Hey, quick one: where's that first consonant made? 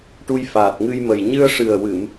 retroflex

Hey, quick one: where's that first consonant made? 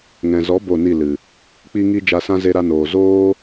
velum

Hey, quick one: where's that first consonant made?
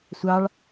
tongue tip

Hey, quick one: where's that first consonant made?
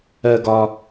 velum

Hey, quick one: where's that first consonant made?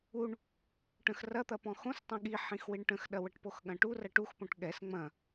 retroflex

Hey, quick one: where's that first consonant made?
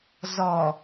tongue tip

